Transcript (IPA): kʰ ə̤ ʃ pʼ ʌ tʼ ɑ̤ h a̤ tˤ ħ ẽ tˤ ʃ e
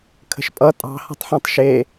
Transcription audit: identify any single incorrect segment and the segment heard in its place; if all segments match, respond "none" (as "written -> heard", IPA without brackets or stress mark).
none